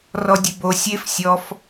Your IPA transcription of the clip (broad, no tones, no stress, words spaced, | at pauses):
rɔdʲebo sʲef sʲɔf